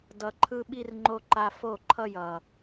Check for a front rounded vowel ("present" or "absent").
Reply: absent